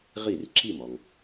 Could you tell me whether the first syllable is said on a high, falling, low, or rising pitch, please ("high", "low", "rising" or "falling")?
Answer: falling